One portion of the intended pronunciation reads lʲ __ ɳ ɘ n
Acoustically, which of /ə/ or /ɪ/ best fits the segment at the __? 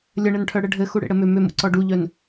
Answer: ə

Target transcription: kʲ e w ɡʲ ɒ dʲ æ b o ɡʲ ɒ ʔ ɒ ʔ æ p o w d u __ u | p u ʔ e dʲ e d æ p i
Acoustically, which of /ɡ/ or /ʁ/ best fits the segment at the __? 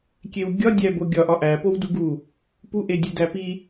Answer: ɡ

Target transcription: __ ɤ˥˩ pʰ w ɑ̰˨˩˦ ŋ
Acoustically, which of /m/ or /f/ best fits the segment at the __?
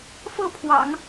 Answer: f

